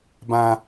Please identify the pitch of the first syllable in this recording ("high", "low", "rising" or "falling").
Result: high